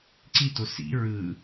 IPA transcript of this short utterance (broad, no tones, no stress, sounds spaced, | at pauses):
ǀ i t o s ḭ ɹ ɯ